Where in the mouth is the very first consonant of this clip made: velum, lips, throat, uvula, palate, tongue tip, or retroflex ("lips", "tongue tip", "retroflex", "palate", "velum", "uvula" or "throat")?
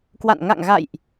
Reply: velum